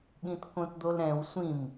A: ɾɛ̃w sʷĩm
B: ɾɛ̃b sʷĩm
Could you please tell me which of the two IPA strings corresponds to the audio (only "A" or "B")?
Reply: A